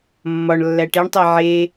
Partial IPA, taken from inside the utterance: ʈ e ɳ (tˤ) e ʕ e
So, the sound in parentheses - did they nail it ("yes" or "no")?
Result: yes